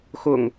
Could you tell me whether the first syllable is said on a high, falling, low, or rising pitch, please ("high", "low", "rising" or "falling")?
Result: low